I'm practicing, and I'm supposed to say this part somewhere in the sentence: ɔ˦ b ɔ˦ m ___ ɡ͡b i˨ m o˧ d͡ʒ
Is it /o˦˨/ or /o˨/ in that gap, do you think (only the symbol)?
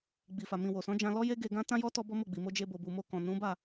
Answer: o˦˨